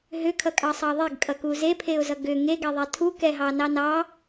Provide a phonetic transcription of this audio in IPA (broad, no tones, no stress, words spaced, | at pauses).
ɦʏkʰʌkʼɑsˤɑ ðˤeɡkʼʌku zepʰeʊ̯zʌ ɡʏ ŋeɡɛðˤɛ tʰukɛɦɑnɑ nɑ